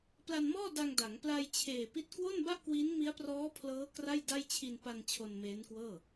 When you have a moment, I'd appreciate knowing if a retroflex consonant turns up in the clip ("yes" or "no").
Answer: no